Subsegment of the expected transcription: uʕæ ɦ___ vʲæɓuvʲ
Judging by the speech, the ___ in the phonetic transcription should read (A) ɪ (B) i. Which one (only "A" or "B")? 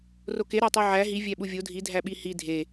B